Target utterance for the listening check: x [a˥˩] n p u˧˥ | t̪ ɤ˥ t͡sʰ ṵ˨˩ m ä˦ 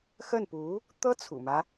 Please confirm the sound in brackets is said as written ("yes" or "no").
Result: no